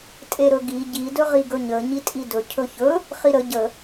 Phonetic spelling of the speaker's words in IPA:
tʼ e ɾ ɵ ɡ i ɟ i d ɵ ʁ i ɡ ɵ ɲ ə ɲ i tʼ i d ɵ cʰ ɵ ç ɵ | χ i ɾ ə ɟ ə

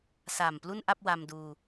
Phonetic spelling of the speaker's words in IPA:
s aː˨˩ m p l u˥˩ n ʔ a˥˩ p̚ w a˧ m d uː˧

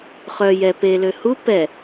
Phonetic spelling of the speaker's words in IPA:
χ œ j ɛ p e l ø h u p ɛ

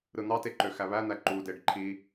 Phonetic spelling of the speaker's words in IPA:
ɾ ɯ n̪ ɑ t e ǃ ø x æ β æ n̪ æ ǃ u d e ɖ ǃʰ i

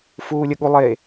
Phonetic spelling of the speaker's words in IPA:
f uː lʲ ə ɠ u lˠ e

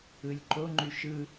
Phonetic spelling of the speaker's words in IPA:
ɯ lʲ ǃ o ŋ͡ǃ y ʃ ɯ

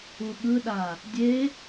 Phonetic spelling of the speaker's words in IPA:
u ɠ ɯ ɗ a | dʲ e

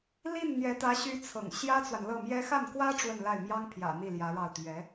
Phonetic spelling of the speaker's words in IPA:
l i˥˩ n n̪ j ɛ˧˥ t̪ ä˧˥ ɕ y˧˥ t͡sʰ ɤ̰˨˩ ŋ ɕ j ä˥ t͡s w a˨ n l ɤ˥˩ m j ɛ˥ x a˥˩ n k w ä˥ ʈ͡ʂ w ə˥˧ n l a˥˩ ɪ̯ m j ɑ˥ ŋ pʰ j ä̰˨˩ n̪ i˥˩ l j ä˧˥ ɻ ɑ˥˩ ʊ̯ t̪ ɥ ɛ˧˥

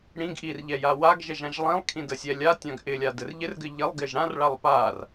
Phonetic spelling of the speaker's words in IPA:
ɽ ĩ ɡ ʔ i r ʎ ɛ j a w a ɡ ʒ ɛ ʒ ã ʒ lˠ ĩ lˠ kʰ ĩ d ə sʲ ɛ lʲ a tʲ ã ɡ ʔ ɪ lʲ a d ɘ r ʎ ɪ r ɡ ɘ ʎ ɪ lˠ ɡ ɪ ʒ ɽ ã r ɭ a lˠ p a r

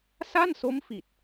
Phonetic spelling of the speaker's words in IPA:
s a˥˩ n s o˦˥ m f i˨˩ t̚

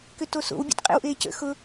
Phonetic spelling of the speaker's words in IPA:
k ʏ t o s o̰ w bʲ a̰ t qʼ ḛ w ʔ eː c ə̰ x ʊ

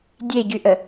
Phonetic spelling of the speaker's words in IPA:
dʲ e ɟ y ʔ ə

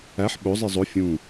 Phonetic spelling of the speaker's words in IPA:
æ ħ ɓ o zˤ i zˤ o fʲ ũ

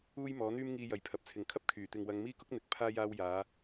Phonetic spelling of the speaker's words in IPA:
uː˥ j m ɔː˨˥ n̪ yː˥ m ŋ iː˧ j ɐ˨ j pʰ ɐ˨ p̚ t͡sʰ ɪ˨ ŋ kʰ ɐ˥ p̚ kʰ yː˨˩ t̪ ɪ˨ ŋ w ɐ˨˧ ŋ m iː˥ k ʊ˥ k̚ n̪ ɪ˨˥ k̚ pʰ aː˥ j aː˧ w j aː˨˧

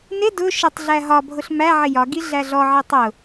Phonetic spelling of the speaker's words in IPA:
n ɪ d ʊ ʃ ɪ tˤ ɮ æ ɦ ɒ bʱ ʊ ɬ m æ ʕ ɪ j ɒ ɡ i ɮ æ ɮ ɔ ʕ i tˤ ʊ

